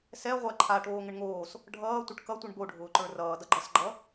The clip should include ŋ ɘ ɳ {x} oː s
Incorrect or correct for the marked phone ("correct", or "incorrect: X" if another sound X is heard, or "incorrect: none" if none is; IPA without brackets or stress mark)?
incorrect: ŋ